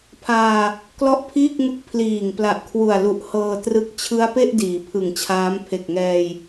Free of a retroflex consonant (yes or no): yes